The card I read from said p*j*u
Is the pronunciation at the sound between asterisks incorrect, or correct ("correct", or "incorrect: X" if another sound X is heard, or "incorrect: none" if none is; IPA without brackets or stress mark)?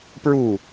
incorrect: ɹ